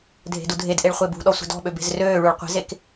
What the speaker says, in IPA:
dʱ e̤ d u dʱ e d ʔ e ɭ χʷ e b ṳ ɗ ɔ sʷ e̤ d ɔ̤ ɓ ø b e̤ z r øː ɭ u ɭ qʷ e̤ z e k

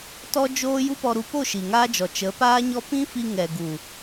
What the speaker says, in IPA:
t ɔ˦ d͡ʒ oː˦ j u˦ p ɔ˧ ɾ u˧ p o˦˨ ʃ i˨ ŋ aː˦ d͡ʒ ɔ˨ t͡ʃ ə˨˦ p aː˦ ɲ ɔ˦ p ĩ˦ f i˧ ŋ ɛ˨ ɡ u˨

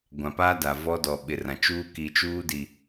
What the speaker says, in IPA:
ɡʷ ã˨ p aː˦ d a˨ v ɔ˦ d ɔ˨ ɓ ɪ˨ r ã˨ t͡ʃ uː˦ k i˨ t͡ʃ uː˦ d i˨

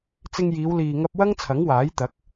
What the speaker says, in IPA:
t͡s ɪ˧ ŋ j iː˨˧ w l iː˨ ŋ ɐ˧ p̚ w ɐ˥ ŋ t͡sʰ ɐ˨˥ ŋ w aː˨˥ j t̪ ɐ˨˥ k̚

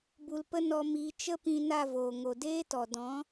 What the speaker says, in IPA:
b u˧ l p ə˦ n ɔ˧ m iː˧ t͡ʃ ə˦ p ĩ˧ n a˦˨ v oː˨ ŋ o˨ d eː˦ t ɔ˨ d ɔ̃˨˦

